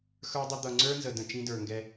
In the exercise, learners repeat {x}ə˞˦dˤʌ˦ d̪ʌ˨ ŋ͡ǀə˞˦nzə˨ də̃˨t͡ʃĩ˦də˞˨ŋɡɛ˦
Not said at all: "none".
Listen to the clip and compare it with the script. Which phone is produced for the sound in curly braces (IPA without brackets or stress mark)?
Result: x